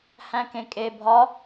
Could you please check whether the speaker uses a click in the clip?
no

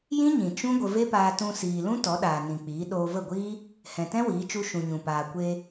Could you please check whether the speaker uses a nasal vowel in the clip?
yes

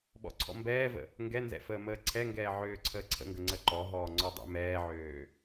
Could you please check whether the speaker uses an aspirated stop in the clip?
yes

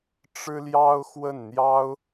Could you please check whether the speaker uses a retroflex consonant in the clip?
yes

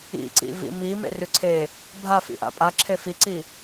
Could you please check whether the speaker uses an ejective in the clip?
yes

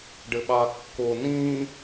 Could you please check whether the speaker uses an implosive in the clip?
yes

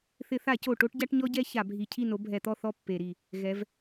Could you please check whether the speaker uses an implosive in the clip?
no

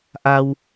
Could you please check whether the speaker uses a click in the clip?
no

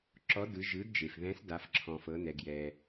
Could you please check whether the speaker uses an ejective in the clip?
no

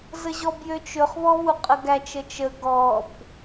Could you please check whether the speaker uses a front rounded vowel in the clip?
yes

